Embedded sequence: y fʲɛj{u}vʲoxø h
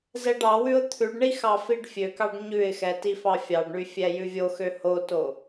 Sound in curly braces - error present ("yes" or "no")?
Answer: yes